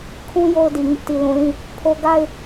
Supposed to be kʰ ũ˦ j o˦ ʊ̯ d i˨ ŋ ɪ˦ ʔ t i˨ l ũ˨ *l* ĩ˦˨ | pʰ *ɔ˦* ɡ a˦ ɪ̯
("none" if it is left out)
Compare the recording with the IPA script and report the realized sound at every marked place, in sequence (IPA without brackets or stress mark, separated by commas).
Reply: l, o˦